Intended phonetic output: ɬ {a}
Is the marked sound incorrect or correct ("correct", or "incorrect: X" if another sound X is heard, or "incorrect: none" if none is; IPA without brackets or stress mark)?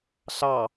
incorrect: ɑ